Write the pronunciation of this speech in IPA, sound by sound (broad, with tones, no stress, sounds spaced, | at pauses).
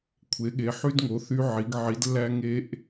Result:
kʷʰ e˩˧ ɠ e˩˧ ħ y˧ d ŋ o˩˧ θ y˧ ʕ i˩˧ ɡ ʕ i˩˧ d lː æ˧ ŋ e˧ ʔ